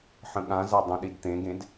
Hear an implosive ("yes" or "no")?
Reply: yes